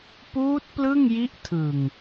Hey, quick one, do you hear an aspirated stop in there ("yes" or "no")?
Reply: yes